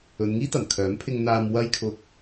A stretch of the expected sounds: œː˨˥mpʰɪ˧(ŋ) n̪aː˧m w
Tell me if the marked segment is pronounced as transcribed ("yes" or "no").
yes